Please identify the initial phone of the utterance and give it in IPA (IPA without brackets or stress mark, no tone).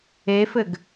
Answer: e